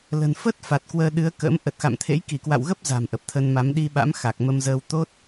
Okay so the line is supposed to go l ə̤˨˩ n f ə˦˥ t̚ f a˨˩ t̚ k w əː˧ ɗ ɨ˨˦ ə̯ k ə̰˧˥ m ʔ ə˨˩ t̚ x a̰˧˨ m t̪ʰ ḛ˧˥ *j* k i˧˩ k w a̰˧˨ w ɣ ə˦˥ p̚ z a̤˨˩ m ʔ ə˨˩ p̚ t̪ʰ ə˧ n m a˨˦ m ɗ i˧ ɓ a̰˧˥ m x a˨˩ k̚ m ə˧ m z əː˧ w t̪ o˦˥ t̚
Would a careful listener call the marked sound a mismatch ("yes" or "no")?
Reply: no